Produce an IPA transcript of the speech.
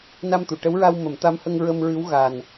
n a˧ m t̪ u˨˩˨ ʈ ə˧˥ w ɹ a˧ w m ə˨˩˦ m t̪ a˧˥ m h ə˧ ŋ ɹ ə˧ m ɹ ɨ˧˥ w ɣ a˨˩ n

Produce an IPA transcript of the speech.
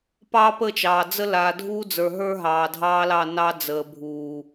p ɑː˦ p ə˦˨ t͡ʃ ɑː˨ d͡z ə˦ l aː˨ dʱ uː˦ d͡z ə˞˨ ɦ ə˞˦ ɦ ɑː˨ dʱ ɑː˦ l ɑ˦˨ n ɑ˦ d͡z əː˨ bʱ uː˨

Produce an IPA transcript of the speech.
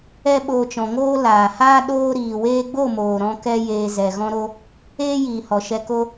ɛ˦ ɓ oː˧ t͡ʃ ɔ̃˨ ŋ oː˦ l aː˨ h aː˦ ɗ oː˦ ɾ iː˨ w eː˦ ɡ͡b o˦˨ m oː˨ ɾ ɔ̃˦ k ɛ˦ j eː˧ z ɛ˨ ɣ ɔ̃˦ ɾ o˧ | eː˦ j iː˨ h ɔ˨ ʃ ɛ˧ k o˦

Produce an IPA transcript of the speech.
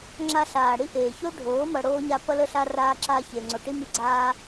ŋ͡ǁ a˧ ɬ aː˨ ɽ i˦ ʔ eː˨ ç o˦ ɖʱ oː˨˦ m ʌ˧ ɽ oː˦ ɲ a˦ p ʌ˧ l ə˧ ɬ a˧ r aː˧ ǁ aː˧ ç eː˨ ŋ͡ǀ o˨ ʈ i˧ m i˧ ɡ͡ǀ aː˧

